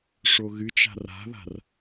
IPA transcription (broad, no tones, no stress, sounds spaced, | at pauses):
ʂ o ɣ ɨ t͡ʃ a̤ r a̤ ð a̤ r